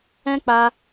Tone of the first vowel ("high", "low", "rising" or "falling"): high